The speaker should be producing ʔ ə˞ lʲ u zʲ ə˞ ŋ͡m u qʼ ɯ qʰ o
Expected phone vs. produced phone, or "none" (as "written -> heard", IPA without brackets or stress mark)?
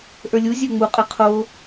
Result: none